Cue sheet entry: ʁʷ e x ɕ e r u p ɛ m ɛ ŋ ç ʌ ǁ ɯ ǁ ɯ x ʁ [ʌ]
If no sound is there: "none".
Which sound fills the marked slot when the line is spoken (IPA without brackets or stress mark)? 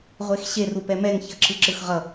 ʌ